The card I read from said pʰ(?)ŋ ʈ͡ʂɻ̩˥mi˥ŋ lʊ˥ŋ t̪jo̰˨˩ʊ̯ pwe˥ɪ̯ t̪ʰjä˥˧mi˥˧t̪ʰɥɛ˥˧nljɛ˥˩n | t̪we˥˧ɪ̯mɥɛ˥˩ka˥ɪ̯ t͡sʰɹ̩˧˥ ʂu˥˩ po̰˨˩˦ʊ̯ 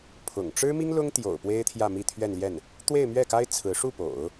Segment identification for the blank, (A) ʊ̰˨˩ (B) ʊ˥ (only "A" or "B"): A